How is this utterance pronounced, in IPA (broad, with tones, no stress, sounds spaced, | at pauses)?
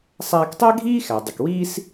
sˤ æː˧ k tˤ æ˥ ɡʱ iː˥ x æ˩ dˤ ɪ˩ k w iː˥ s